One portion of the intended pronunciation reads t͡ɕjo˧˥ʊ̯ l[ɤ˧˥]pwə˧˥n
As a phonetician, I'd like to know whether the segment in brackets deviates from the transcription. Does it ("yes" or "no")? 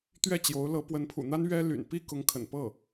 no